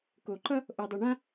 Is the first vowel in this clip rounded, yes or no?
yes